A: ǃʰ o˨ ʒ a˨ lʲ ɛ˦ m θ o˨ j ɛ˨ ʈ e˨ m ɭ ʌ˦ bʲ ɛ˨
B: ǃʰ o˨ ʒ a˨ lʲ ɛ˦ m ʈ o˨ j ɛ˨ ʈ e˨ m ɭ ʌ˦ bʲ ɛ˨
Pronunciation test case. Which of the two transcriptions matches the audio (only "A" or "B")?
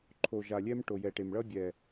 B